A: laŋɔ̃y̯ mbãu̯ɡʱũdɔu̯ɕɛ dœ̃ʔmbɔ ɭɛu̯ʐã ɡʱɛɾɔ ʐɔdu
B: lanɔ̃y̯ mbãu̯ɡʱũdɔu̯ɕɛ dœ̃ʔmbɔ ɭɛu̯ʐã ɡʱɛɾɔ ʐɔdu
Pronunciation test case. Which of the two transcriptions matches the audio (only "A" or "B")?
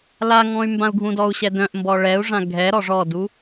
A